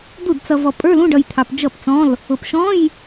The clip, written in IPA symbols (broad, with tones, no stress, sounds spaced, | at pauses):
d̪ u˥˩ d t͡s ʌ˧ v ɔ˧ pʼ ə˞˧˥˧ l ũ˧˥˧ ɖ ʌ˧ j t̪ʰ ɑ˧ p d͡ʒ ʌ˥˩ p t͡s ɔ̃˧˥˧ l | ʊ˧ p ʃ ɔ̃˧˥˧ j